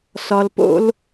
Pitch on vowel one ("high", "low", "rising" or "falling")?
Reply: low